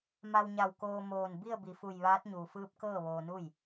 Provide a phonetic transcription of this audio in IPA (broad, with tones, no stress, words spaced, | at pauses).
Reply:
ma˧wɲa˧˩w koː˧ moː˧˩n bi˥˨ə̯bi˩˧fu˧˩j ʋaː˧˥t̚ɲuː˩fɯː˧˥p̚ kɤː˥˨ʋoː˧nu˥˨j